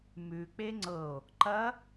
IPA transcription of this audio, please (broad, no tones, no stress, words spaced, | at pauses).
mʉk͡pe ŋ͡ǀɤo̯ | ǃɐ